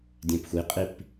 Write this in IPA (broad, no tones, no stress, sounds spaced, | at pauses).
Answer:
dʲ ɛ̃ p xʷ i qʼ i p